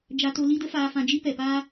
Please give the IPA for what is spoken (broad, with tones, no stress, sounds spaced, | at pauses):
d͡ʒ a˧ t o˧ l i˦ d ə˦ f aː˧ f ã˧ d͡ʒ i˦ p ɛ˨ p aː˦